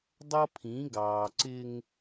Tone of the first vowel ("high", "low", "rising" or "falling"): high